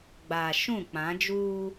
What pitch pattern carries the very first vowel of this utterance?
low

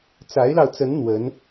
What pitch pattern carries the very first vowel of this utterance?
rising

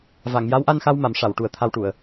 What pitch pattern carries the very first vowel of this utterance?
low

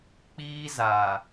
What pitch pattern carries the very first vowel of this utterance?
high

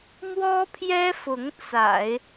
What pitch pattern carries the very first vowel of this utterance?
high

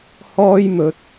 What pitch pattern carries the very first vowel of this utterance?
high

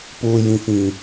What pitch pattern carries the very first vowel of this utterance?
low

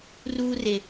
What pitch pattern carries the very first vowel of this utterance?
high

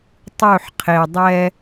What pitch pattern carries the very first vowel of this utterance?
falling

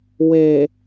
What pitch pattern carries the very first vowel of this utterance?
low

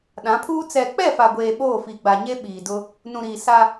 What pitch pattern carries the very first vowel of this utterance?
rising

